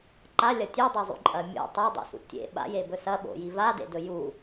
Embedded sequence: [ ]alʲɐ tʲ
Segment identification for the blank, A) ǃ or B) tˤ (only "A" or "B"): A